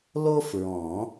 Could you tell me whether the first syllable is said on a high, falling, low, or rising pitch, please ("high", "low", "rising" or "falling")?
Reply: high